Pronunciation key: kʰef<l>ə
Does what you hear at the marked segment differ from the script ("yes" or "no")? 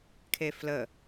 no